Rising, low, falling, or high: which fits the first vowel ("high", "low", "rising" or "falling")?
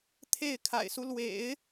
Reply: falling